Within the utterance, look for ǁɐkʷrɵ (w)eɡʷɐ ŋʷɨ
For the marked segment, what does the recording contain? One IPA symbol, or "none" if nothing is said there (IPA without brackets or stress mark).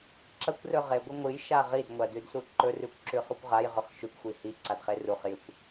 ʁ